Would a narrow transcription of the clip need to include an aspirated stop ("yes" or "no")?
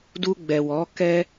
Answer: no